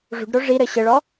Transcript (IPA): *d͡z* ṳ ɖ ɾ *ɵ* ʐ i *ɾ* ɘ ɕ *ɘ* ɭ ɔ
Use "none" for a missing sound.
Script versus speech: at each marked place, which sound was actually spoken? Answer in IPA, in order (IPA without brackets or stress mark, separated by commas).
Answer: ʐ, o, ɾ, ɘ